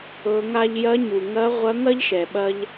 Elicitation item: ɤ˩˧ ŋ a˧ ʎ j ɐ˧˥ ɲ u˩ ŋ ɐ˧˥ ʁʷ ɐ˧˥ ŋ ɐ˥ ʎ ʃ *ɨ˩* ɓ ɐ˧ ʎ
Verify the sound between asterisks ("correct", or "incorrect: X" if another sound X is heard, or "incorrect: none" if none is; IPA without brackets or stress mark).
incorrect: ɛ˩